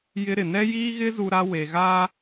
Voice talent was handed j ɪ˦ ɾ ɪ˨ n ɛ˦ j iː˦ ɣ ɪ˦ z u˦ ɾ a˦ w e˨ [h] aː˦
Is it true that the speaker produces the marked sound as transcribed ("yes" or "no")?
no